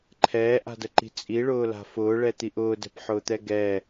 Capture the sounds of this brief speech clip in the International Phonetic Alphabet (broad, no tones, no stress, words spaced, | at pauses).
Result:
ǃʰɛːʔa̤dəǃi̤ t͡sʼiɭʊːla̤ fʊːɭɛt̪iʔ ʊːdɛ̤pħʊːt̪ɛ ɡɛ